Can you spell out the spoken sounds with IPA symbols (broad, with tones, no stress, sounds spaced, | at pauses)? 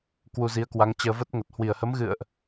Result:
k w u˧ z i˨˦ ə̯ k w a˨˦ ŋ t͡ɕ əː˧ v ə˦˥ t̚ ŋ ə˨˩ t̚ h w i˧˩ ə̯ h ə˨˦ m ɣ ɨ̰˧˨ ə̯ ʔ